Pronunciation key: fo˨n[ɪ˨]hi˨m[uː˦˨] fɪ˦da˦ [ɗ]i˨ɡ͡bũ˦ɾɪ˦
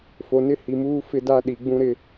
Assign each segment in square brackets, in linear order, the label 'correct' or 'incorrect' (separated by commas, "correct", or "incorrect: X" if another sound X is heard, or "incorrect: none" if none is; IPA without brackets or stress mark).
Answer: incorrect: ɪ˦, incorrect: uː˦, correct